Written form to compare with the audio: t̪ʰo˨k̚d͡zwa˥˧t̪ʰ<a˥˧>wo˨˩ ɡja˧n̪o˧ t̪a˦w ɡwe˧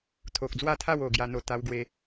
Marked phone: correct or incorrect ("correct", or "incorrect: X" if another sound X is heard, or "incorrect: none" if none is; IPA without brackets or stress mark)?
correct